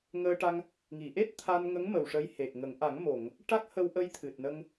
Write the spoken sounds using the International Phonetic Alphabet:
ŋəː˧ʈa˧ŋ | ŋi˨˩˨ʔe˦˥t̚ t̪ʰa˧nŋə˧˥ŋ mə˨˩wʂə˧˥jhe˨˩k̚ŋə˨˩˦ŋ ʔa˨˩˦ŋ mo˨˩˨ŋ | ʈa˦˥k̚hə˧wʔə˧j t̪ʰɨ˨˩t̚nə˧ŋ

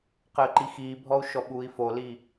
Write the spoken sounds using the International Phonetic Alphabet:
qəːǃixiːbʱɔu̯ ʃɔɓuːi̯foli

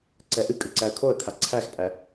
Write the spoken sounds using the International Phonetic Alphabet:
ǀɛʔɨkʼɨ ǀæə̯kʰoə̯kʰa ǀʰæxpʼæ

